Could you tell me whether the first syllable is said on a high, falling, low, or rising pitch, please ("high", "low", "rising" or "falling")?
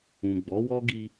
low